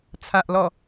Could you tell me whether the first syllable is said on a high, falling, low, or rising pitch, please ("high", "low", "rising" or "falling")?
low